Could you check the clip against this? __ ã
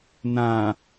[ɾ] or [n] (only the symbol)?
n